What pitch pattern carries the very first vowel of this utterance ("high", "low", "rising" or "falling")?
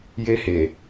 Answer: high